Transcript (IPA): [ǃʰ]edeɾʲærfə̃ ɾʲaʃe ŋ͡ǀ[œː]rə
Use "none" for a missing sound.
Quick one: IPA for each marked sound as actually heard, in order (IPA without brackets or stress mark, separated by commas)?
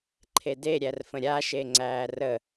ǃʰ, æː